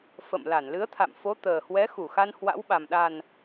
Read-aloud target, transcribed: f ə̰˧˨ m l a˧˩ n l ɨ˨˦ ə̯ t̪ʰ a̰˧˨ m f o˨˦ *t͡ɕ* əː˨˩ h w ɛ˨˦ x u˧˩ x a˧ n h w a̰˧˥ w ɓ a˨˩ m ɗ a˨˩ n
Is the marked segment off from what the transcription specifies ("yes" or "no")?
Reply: yes